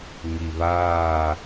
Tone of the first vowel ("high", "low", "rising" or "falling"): low